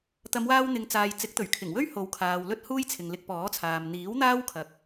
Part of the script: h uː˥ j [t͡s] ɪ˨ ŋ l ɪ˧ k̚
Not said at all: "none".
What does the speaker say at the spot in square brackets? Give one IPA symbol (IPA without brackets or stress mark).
t͡sʰ